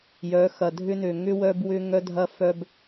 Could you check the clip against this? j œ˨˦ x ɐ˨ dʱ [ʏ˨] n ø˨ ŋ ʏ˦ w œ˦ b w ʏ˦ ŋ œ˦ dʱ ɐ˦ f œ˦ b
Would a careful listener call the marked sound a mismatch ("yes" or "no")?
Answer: yes